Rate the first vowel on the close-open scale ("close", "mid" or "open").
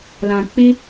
open